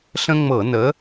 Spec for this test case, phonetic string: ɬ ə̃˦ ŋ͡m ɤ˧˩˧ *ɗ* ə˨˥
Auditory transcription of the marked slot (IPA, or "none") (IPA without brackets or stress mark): n